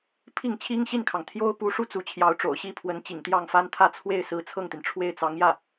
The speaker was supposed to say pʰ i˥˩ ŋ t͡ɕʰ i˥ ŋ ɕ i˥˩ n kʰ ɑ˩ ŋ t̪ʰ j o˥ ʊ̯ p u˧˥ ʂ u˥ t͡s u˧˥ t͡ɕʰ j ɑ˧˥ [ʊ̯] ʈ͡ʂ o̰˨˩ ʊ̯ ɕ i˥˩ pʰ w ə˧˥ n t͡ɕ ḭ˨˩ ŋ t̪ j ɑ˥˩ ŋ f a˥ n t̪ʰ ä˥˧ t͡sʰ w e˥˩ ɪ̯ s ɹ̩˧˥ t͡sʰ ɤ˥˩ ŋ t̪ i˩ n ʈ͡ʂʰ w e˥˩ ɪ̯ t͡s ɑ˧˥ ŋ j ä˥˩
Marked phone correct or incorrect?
correct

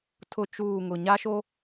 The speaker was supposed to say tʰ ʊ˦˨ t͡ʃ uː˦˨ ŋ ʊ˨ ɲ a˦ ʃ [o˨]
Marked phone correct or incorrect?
incorrect: o˦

